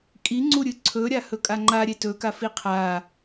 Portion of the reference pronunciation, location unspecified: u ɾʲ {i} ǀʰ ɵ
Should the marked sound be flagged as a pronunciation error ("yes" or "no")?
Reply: yes